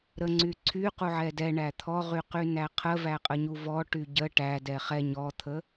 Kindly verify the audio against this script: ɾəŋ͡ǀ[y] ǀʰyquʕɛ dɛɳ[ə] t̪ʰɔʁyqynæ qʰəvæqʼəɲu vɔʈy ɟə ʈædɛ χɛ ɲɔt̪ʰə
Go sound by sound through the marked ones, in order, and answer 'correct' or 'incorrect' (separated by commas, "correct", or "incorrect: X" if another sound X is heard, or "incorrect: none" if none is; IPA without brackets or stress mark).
correct, incorrect: æ